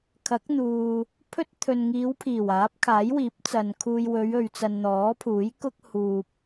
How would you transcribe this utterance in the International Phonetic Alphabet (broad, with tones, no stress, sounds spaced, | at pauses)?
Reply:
kʰ ɐ˨˥ k̚ n̪ uː˨ | pʰ ɵ˥ t̚ t̪ʰ ɵ˨ n ŋ iː˨˧ w pʰ iː˨˩ w aː˨˥ p̚ kʰ aː˨˥ j w iː˨˥ p̚ t͡s ɐ˨ n kʰ uː˧ j w ɵ˨˧ ɥ ɵ˨ ɥ t͡s ɐ˨ n n̪ ɔː˨˥ pʰ uː˨˥ j k ʊ˥ k̚ h uː˨ p̚